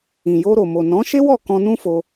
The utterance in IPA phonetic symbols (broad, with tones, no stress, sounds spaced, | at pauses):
ĩ˨ j o˧ ɾ o˨ m o˨ n ɔ̃˨˦ ʃ e˦ w ɔ˦˨ k ɔ̃˧ n ũ˦ f o˧